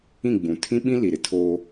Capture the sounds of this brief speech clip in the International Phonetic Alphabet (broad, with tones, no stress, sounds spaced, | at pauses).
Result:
ĩ˦˨ ɡ͡b ũ˨ tʰ ĩ˦ ɓ ĩ˦ l i˨ ɾ ɪ˨ tʰ oː˦